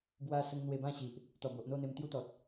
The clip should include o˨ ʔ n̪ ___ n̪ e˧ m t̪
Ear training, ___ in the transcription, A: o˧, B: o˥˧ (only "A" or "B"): B